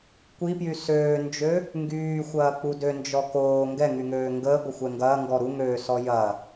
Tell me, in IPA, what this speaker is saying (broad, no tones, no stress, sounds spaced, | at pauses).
kʷ i p j y s øː n d͡ʒ ø | ŋ ɡ yː xʷ ɐː k͡p u d ø n d͡ʒ ɔ k oː ŋ ɡ ɛ ŋ y ŋ øː ŋ ɡ əː ɡʷ ə xʷ ɛ ŋ ɡ ɐː ŋ ɡ ɔ ɾ u ŋ øː s ɔ j ɐ